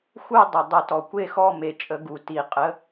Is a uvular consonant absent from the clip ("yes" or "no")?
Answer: no